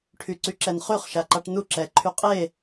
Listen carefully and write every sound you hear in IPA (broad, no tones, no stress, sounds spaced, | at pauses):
ʈʰ y ǀ y ǁ ɛ n χ y χ ʃ a ǃ a ʈ n u ǁ ɛ ǃʰ y qʼ e